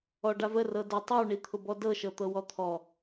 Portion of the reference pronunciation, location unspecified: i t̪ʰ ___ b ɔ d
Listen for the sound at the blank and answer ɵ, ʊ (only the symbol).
ʊ